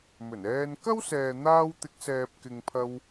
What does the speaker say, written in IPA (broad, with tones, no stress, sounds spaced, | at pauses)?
m ɵ˨˩ n ɛː˧ n k ɐ˥ w s ɛː˨ n̪ aː˧ w t̪ ɪ˨˥ k̚ s ɛː˨ p̚ k ɪ˨ ŋ pʰ ɐ˧ w